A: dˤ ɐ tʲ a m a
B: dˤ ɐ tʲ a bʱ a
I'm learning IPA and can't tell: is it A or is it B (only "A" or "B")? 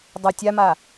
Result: A